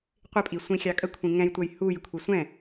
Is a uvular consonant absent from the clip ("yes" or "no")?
no